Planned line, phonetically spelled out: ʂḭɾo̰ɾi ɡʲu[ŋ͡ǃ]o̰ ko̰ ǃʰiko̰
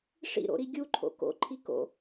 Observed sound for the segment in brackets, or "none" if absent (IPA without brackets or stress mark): ǃʰ